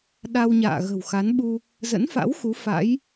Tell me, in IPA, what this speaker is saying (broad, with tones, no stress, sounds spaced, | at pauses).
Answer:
ɗ a˧ w ɲ a̰ː˧˨ ɣ ə̤˨˩ w x a˨˦ n ɓ u˧ | z ə̰˧˥ n f a̰˧˥ w x u˨˦ f a̰˧˥ j